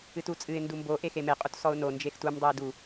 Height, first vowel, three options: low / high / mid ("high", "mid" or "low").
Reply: high